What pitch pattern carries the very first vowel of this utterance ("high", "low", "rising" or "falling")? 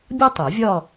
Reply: high